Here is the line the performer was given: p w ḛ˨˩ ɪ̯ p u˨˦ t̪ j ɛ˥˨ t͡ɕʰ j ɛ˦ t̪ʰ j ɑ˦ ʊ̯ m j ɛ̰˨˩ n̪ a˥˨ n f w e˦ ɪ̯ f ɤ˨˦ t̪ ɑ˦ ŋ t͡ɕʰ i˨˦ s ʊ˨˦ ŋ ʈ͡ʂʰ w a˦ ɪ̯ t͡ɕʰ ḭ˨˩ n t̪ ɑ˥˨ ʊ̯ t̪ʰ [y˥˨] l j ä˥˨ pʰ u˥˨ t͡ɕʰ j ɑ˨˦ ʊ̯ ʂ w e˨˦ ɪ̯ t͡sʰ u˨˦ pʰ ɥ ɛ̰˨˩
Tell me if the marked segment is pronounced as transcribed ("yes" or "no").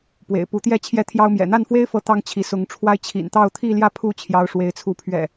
no